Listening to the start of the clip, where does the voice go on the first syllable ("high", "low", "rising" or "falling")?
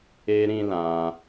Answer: high